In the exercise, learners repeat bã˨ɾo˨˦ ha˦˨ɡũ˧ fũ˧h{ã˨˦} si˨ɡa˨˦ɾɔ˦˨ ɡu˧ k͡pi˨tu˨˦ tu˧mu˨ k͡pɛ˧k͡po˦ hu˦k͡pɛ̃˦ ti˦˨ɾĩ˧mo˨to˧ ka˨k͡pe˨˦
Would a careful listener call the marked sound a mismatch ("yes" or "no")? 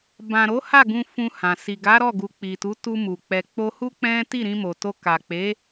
yes